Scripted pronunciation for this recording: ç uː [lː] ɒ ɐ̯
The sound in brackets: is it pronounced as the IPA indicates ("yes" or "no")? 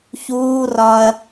no